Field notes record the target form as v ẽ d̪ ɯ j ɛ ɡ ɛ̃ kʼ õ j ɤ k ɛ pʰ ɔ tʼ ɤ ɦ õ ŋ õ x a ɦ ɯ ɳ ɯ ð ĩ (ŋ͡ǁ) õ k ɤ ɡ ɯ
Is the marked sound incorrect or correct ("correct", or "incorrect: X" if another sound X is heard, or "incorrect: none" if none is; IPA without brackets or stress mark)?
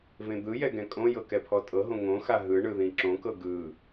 incorrect: ǁ